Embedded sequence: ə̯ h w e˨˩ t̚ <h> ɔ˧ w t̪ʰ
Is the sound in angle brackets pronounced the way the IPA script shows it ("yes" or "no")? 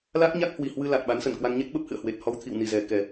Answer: yes